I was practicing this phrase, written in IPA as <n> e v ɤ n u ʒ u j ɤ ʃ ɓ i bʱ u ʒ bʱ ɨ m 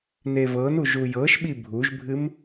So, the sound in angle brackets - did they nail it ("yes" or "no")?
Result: yes